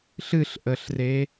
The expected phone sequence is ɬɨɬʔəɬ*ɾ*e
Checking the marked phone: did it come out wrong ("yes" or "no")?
yes